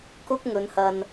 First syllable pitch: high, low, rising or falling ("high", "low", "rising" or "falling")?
high